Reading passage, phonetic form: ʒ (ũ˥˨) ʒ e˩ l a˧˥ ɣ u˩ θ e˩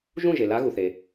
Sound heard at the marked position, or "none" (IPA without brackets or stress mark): ũ˥˨